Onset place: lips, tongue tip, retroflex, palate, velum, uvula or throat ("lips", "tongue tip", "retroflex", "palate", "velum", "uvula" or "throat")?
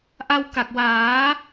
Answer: throat